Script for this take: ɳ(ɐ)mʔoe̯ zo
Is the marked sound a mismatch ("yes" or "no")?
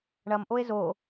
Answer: no